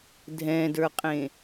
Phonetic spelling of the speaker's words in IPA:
dʱ ɛ̃ d ə˞ qʼ ẽ

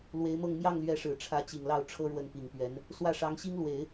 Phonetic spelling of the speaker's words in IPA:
l w e˧˥ ɪ̯ m ɤ˥˧ ŋ m j ɑ˥˩ ŋ l ɥ ɛ˧˥ ʂ ɻ̩˨˩ ʈ͡ʂʰ ä˧˥ t͡ɕ i˨˩ ŋ l ɑ˥˩ ʊ̯ ʈ͡ʂʰ ɤ˥ ɻ w ə˥˩ n p i˨˩ ŋ p ɥ ɛ˧˥ n | s w ä˥˩ ʂ ɑ˧˥ ŋ ɕ i˥ ŋ l w e˨˩˦ ɪ̯

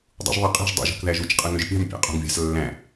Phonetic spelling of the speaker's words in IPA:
dˤ ṵ ʒ ðˤ ɑ qʼ i̤ ʒ dˤ ṵ ʒ ṳ k ð æ ʒ u t͡ʃ qʼ ɯ ŋ ø ʒ pʲ ɑ̤ m pʲ ɑ̰ qʼ ṳ ŋ vʲ ɑ̤ s lː æ̃

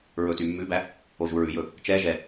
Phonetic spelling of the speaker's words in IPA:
ɹ ɵ t y mː ʉ b æ | o ʒ u ɹ ʉ j ɵ | t͡ʃ ɛ ʒ ɛ

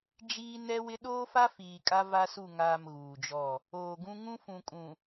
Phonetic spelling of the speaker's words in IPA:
d͡ʒ iː˦ n ɛ˦ w ɪ˦ ɗ oː˦ f a˦ f iː˨ kʼ a˦ v a˦ s u˦˨ ŋ aː˨ m ɣ uː˨ d͡ʒ ɔ˦˨ | oː˨ ɡ ũ˦ ŋ ũ˦ f ũ˨ kʼ ũ˨

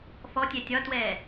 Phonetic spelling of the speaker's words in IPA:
f ɔ tʲ ɛ tʲ ɒ t w ɛː

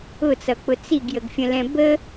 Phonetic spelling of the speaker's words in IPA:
ʊ t͡s ʌ k͡p ʊ t͡s i ɡ j ə ɡ fʲ ə̃ l ɛ̃ b ə

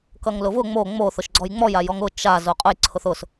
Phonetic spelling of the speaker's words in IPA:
k ʌ ŋ l ʊ v ʊ ŋ͡m o ŋ͡m o θ ʊ ʃ ɡ͡ǀ ɔ j ŋ͡m ɔ j a j ɔ ŋ ʊ t͡ʃ a z o qʼ ʊ j ǀʰ ʊ θ ʊ s

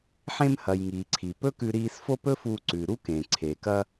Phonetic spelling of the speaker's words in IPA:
ħ ẽ˧ m h ɐ˩ j ŋ iː˩ ǀʰ i˩ p ɵ˥ k ʉ˧ ɾ iː˧ s f o˥ p ɵ˥ f u˧ ǀ ʉ˩ ɾ u˥ k ẽ˩ ǀʰ e˩ k ɐ˧

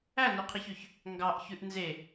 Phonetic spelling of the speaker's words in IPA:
æ n ɵ qʰ i ç ø ç | ŋ ɡ ɑ ʔ ç ʉ ʔ n z e

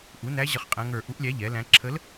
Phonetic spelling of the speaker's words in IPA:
ʔ u˩˥ n æ˧˥ ʑ ə˦˨ χ qʼ æ̃˧˥ ŋ ə˞˦˨ ʔ u˧˥ ʔ lʲ æ˧˥ ʎ ɛ˩˥ l æ̃˧˥ ǁʰ ə˧˥ l

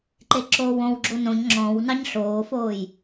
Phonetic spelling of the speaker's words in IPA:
ǃ e ǁ oː w õ w ɡ͡ǁ o n õ ɲ ŋ͡ǁ ɔ̃ w n ɑ ɲ ɬ oː f oː j

